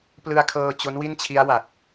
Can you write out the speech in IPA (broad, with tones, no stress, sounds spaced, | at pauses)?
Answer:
p l ɯ˧ a̯ kʰ ɤː˧ t͡ɕ o˦˥ n w i˥˩ n t͡ɕʰ i˦˥ a̯ w a˨˩ t̚